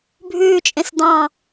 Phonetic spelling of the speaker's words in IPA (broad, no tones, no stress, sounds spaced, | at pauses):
bʱ ʉː t͡ʃʼ ẽ s d ɑ̃